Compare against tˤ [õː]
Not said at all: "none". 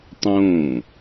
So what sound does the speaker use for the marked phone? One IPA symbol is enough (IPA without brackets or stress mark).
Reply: õː